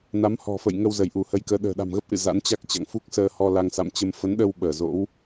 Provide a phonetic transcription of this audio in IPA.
na˨˦mhɔ̤˨˩fə̰˧˨j ŋə˧w zə˧˩jʔu˧˩hə˨˦jkəː˨˦ ɗə̤ː˨˩ɗa̤˨˩mɣə˦˥p̚ʔɨ̰˧˨ za̰˧˥nt͡ɕa˦˥k̚t͡ɕa̰˧˨ŋ fu˦˥k̚səː˧hɔ˧ la˧ŋsa̰˧˨mt͡ɕə˧m fə˨˦nɗə˧w ɓəː˧˩zo̰˧˥w

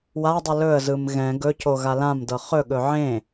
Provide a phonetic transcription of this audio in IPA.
wadˤɯ lɵə̯zɯm ɣɛ̃ ɡɵco ɣalãmdɤ χɵɠɵ ʕẽ

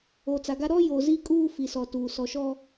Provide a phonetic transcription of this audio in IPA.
o˨t͡sa˨ɡa˦ ɾɔ˦ jo˨ zi˦kʼuː˦ fi˨sɔ˨tuː˨ sɔ˨ʃɔ˦

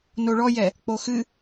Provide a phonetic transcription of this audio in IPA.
noɭɔjɛ | k͡poxɨ

